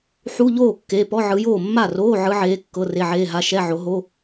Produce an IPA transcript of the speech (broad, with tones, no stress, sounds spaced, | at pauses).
ħ u˧˥˧ ʎ oː˥˩ kː e˧˥˧ p ɔ˧˥˧ ʕ ɯ˨˦ j oː˥˩ mː a˥˩ r oː˧˥˧ ʕ ɯ˨˦ ʕ eː˨˦ kː ɤ˧˥˧ r e˧˥˧ ʕ eː˧˥˧ ɦ a˧˥˧ ʃ ɛ˧˥˧ ʕ o˨˦ ɦ o˧˥˧